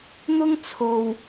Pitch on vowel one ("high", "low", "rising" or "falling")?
high